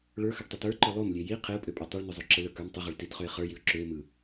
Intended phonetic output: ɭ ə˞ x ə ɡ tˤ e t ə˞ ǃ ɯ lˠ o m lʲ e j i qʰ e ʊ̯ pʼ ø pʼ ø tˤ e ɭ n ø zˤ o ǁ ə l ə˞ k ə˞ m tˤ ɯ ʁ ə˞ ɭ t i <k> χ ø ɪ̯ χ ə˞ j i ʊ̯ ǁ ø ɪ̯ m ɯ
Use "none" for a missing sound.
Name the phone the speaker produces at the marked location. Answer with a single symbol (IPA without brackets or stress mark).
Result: t